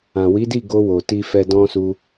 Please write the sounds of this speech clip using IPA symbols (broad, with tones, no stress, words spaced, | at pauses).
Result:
ã˨wi˨˦di˦˨ ɡo˧wo˨ ti˧fɛ˧ dɔ̃˦su˦